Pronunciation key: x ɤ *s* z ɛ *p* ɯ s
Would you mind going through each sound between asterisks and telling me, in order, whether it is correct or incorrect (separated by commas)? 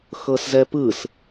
correct, correct